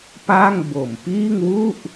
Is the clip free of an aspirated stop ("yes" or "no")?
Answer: yes